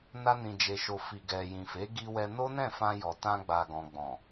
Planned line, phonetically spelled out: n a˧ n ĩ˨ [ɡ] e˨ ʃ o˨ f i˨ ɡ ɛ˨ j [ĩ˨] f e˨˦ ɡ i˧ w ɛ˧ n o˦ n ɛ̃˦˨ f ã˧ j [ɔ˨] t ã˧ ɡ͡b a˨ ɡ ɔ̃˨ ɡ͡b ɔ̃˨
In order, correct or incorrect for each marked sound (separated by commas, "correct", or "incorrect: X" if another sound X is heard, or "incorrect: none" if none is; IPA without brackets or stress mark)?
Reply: incorrect: d͡ʒ, correct, correct